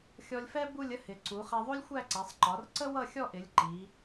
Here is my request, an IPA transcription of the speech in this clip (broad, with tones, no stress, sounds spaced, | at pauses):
xʲ ɔ˧ lʲ f ɛ˥ b u˥˧ lʲ ə˥ h ɪ˩˧ ǀ u˩˧ χ ɛ˧ ðˤ u˥ lʲ xʷ æ˥˧ ǀ æ˩˧ sˤ ǃ ɒ˩˧ r ǀ ə˥ w ʌ˥˧ xʲ ɔ˥˧ ʔ ɪ˩˧ lʲ ǃ i˩˧